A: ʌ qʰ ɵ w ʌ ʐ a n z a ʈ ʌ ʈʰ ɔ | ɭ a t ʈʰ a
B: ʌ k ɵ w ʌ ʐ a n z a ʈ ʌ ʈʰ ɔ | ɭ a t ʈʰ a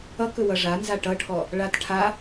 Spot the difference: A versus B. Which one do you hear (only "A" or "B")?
B